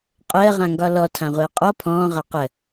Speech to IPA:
qʼ əː ʁ ã ŋ ɡ ɒ l ɔ tʰ ã ʁʷ əː qʼ ɔ pʰ ɔ̃ː ʁ a q ə

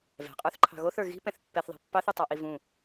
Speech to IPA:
v ɛ̤ qʼ ə˞ θ ǃʰ ɑ̤ ɣ o θ ə˞ ɣ i̤ p ɛ̃ θ pː ɛ θ ðˤ ɛ̤ pː ɑ θ ɨ tˤ ɑ ʔ i v ũ

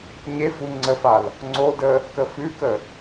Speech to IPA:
ɲ e f u ŋ͡ǀ ə f a l | ŋ͡ǀ o d ə | k ə f ʉ k ə

